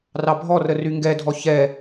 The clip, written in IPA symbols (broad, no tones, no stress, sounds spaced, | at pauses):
r ɑ bʱ ɔ r ə r y ŋ ɡ ɛ dʱ ɔ ç ɛ